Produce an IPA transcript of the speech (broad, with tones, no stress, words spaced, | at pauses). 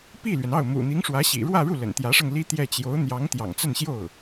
pi˥˩lɥɛ˩nɑ˥˩ʊ̯ mṵ˨˩n̪i˧˥ŋʂwä˧˥ ɕḭ˨˩ɻwä˥˧ɻu˥˩ lə̰˨˩nt̪jä˧˥ʂɤ˧ŋ li˥ t̪jɛ˥˩ t͡ɕjo˧˥ʊ̯n̪jɑ˧˥ŋ t̪jɑ̰˨˩ŋt͡sə˥˧nɕjo˥˩ʊ̯